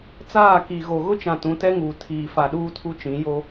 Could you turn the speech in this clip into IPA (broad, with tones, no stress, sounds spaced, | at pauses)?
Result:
t͡s aː˦˨ k i˨ ɣ o˨ ɣ ʊ˦ t͡ʃ ã˨ t ũ˨˦ t ɛ˦ ŋ uː˨ tʰ iː˨ f a˨ ɗ uː˦ tʰ u˦ t͡ʃ ĩ˨˦ j o˦